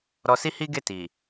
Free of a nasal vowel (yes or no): yes